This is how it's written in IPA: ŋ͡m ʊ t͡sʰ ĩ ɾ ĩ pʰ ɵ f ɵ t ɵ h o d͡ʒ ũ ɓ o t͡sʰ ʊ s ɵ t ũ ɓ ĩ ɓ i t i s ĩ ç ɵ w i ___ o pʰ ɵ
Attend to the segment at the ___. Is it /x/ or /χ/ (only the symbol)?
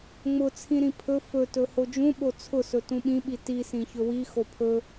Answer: x